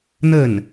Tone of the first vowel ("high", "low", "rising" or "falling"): falling